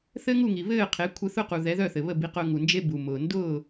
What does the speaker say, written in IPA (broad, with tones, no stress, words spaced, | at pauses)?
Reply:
θɘ˥ŋu˥˩ŋi˩ βɘː˥˩qʰe˩˥ kʷʰɘ˧θʊ˥˩qu˩ ðɛ˩˥ðœ˥˩θɘ˩βə˥˩ bi˧qʊː˧ŋu˩nd͡ʒe˥ bu˩mʊː˩ ndʊː˥˩